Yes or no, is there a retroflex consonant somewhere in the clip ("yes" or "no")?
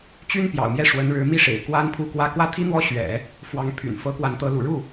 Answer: yes